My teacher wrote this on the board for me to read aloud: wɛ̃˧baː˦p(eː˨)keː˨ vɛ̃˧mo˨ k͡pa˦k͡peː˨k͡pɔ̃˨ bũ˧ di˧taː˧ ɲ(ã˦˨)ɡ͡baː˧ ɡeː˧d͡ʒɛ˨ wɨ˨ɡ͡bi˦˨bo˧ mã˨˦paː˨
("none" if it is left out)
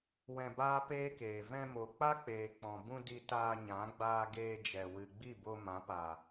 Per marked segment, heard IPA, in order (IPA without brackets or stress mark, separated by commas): eː˦, ã˨˦